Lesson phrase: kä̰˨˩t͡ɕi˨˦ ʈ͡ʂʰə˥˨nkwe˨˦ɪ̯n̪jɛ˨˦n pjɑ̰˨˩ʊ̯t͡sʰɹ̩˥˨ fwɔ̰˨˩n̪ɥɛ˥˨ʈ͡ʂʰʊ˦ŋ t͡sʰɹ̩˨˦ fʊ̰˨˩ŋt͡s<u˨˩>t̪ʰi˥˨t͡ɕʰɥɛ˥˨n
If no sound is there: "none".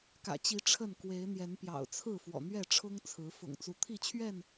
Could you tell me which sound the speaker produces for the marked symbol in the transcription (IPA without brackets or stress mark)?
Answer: u˨˦